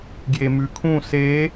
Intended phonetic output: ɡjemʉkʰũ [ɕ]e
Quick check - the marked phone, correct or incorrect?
incorrect